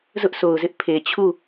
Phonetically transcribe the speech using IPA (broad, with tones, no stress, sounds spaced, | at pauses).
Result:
z ʊ˦ ʔ sʰ o˨ ʊ̯ z ɪ˦ ʔ pʰ e˨ t͡ɕʰ u˦˨